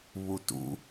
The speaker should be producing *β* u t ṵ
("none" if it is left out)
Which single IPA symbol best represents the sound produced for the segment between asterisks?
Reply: β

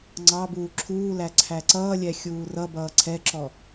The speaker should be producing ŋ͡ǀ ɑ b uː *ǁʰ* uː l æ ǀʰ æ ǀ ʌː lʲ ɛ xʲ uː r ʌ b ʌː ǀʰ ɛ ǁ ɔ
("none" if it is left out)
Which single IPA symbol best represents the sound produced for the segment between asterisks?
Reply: ǁʰ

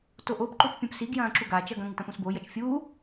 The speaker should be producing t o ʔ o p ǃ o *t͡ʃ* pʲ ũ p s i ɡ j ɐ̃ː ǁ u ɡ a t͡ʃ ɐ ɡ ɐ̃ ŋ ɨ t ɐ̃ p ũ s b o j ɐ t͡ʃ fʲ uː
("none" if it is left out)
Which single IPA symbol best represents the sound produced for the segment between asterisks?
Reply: t͡ʃ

